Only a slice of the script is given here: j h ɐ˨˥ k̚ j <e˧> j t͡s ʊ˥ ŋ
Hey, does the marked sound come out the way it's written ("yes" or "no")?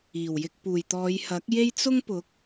no